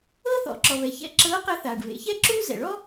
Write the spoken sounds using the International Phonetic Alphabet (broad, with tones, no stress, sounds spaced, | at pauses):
ɤː˥ θ ɔ̰˩˧ ǁ ɔ˩ β ɛ˩ ç ɛ̰˧˥ ǁ ɤː˧˥ q ɛ˧˥ θ aː˩ ɖ β ḛ˩˧ ç ɛ˥ ǁ uː˥ z ɛ̰˩ ɭ ɔ˥